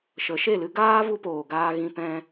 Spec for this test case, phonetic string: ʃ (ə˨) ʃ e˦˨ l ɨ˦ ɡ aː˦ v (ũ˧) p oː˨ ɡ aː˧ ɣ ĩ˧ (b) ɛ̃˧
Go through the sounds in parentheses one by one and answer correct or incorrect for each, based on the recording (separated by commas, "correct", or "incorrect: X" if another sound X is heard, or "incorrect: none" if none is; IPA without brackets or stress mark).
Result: incorrect: ə˨˦, incorrect: u˧, incorrect: p